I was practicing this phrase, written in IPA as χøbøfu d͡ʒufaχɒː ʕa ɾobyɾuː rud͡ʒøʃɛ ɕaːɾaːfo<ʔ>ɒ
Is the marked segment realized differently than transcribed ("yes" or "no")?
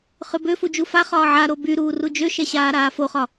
yes